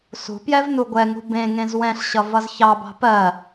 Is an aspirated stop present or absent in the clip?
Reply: absent